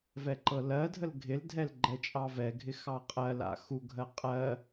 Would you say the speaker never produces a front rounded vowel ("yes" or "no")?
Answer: yes